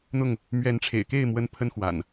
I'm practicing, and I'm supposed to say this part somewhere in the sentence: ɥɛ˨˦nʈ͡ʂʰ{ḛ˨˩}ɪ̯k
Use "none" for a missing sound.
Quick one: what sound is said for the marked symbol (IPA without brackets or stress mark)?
ḛ˨˩